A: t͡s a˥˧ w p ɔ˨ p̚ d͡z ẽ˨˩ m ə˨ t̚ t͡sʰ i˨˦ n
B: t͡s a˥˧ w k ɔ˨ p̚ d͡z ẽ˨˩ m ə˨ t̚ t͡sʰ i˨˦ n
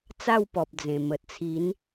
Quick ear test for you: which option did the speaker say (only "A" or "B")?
A